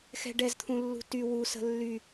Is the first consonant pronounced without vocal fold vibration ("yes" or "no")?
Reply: yes